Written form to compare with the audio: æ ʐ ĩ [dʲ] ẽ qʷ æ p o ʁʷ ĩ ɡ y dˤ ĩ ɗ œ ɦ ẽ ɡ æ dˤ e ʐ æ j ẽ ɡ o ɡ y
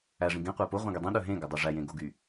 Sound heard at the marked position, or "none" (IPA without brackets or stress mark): ɡ